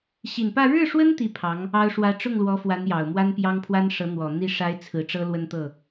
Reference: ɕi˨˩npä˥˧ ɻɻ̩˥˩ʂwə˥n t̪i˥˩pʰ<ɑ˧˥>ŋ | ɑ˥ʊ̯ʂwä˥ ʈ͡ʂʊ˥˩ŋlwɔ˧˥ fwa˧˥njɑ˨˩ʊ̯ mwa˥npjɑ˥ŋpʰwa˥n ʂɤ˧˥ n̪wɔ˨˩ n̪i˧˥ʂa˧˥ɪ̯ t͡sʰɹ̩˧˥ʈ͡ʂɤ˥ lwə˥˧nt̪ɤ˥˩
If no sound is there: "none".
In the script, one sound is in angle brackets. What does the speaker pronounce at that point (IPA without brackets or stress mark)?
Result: ɑ˧˥